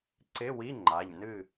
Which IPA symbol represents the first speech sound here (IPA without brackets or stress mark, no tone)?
ǀ